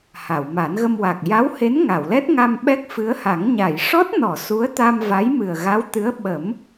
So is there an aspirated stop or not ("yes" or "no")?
no